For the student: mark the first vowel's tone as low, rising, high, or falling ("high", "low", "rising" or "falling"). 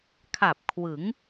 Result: low